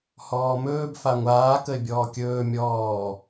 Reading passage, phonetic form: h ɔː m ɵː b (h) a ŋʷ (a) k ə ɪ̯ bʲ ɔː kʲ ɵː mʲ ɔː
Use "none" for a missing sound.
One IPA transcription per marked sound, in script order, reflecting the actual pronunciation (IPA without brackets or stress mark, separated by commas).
f, aː